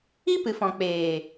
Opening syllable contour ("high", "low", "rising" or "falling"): high